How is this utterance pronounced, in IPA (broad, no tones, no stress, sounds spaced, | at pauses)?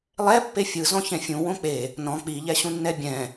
lˠ ɛ pː e fʲ ɯ z ɔ̃ ç ɛ̃ fʲ ũ w õ k͡p e | n ɔ̃ k͡p i ʎ ɛ ɕ ũ nː ɛ bʲ ɛ̃